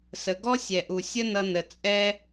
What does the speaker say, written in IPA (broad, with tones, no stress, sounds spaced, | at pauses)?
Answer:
s ə˩ ɡ ɔ˥ sʲ ɛ˩ ʔ u˩ sʲ ə˥ n ʌ˧ n ə˩ t͡sʼ ɛ˥